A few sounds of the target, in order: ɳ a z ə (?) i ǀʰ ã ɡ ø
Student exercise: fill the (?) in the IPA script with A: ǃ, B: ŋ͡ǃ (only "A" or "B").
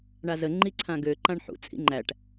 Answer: B